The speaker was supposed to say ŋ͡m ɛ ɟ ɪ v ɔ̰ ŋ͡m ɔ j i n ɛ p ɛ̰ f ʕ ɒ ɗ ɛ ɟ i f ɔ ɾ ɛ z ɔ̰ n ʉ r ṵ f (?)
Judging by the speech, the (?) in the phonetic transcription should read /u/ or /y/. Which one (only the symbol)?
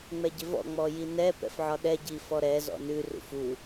u